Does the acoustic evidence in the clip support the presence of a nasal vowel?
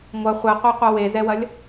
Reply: no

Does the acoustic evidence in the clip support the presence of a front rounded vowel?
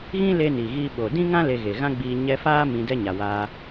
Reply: no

